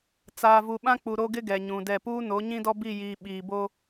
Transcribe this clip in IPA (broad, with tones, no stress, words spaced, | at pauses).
t͡saː˨vu˨ɓã˦k͡pu˨ ɾo˦ɡɪ˦ ɡɛ˨ɲũ˨dɛ˦˨ puː˦no˨˦ɲĩ˦dɔ˦ bi˦˨jiː˨ ɓiː˨bo˦